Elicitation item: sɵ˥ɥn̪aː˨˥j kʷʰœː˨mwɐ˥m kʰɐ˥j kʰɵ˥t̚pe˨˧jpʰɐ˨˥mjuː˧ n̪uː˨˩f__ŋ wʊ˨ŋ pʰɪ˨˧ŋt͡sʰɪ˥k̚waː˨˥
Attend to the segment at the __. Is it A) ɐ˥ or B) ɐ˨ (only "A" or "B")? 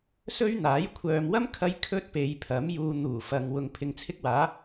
B